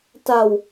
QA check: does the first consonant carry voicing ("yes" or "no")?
no